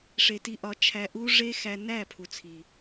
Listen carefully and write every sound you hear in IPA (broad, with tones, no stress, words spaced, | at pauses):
ʂe˨ti˧ ʔɒ˨˦t͡ʃʰæ˧ʔu˦ ʐe˦xæ˧næ˦˨ pʰu˨t͡sʰi˨